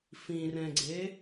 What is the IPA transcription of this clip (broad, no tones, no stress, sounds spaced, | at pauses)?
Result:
f ĩ r ɛ̃ ɡ͡ǀ e